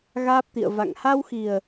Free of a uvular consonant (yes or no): yes